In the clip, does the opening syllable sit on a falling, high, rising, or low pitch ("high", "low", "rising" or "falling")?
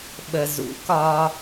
low